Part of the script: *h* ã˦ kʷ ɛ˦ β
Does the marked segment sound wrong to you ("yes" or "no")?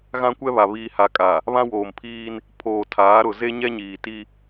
yes